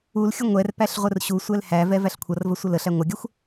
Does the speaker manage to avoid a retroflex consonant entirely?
yes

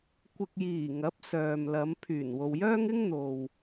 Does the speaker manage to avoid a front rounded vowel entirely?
no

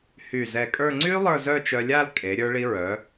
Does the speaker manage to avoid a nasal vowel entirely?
yes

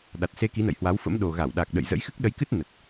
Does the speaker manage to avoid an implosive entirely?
no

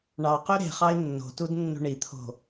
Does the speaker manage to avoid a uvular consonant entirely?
no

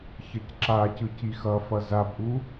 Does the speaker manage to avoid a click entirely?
no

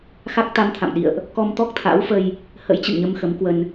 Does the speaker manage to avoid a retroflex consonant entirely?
yes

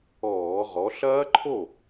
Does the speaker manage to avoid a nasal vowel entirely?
yes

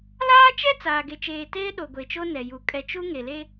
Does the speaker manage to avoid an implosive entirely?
no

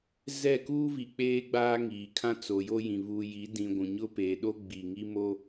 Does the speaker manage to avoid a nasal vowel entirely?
no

